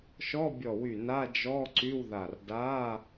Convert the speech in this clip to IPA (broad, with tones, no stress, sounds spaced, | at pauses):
ʃ ɔ˧˥˧ bʲ ɔ˧˩ w y˧˩ n a˧˥˧ d͡ʒ ɔ˧˥˧ ǀ y˧˥˧ w ð a˧˩ r d a˧˥˧